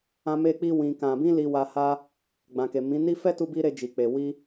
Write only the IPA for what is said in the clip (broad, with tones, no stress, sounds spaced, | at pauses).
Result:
ã˦ m e˦ k͡p i˦ w ĩ˧ k ã˨ b ĩ˧ l i˧ w a˧ h a˦ | ɡ͡b ã˨ k e˨ m ĩ˨˦ n i˦ f ɛ˦ t u˧ b i˧ ɾ e˧ d͡ʒ i˨ k͡p e˨ w i˧